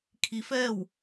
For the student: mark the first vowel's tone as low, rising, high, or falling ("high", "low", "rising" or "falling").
rising